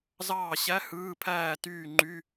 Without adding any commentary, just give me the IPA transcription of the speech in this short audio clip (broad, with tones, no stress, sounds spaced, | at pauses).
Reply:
z ɑː˥˨ ɕ æ˧˥˧ h ɯː˧˥˧ pʰ æː˥˨ t yː˥˨ ŋ͡ǃ y˧˥˧